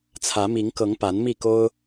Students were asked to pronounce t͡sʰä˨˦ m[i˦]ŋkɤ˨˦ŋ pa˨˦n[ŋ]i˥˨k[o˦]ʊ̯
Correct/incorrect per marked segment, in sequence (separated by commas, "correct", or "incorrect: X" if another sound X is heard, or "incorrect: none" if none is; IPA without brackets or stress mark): incorrect: i˨˦, incorrect: m, correct